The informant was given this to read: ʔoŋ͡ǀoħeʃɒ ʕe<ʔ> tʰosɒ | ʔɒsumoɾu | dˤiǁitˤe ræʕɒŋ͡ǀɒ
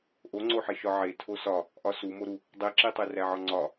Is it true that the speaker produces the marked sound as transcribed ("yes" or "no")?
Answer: no